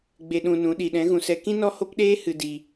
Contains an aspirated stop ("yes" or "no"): no